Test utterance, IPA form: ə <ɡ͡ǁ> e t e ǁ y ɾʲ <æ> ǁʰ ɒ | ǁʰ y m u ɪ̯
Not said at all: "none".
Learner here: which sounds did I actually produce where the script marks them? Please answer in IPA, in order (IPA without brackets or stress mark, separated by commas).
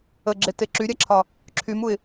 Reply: ɡ͡ǁ, æ